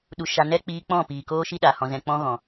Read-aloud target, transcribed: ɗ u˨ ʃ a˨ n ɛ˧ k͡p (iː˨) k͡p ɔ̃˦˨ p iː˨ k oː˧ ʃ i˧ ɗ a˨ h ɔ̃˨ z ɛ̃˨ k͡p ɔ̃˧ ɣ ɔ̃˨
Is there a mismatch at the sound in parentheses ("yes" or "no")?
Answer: yes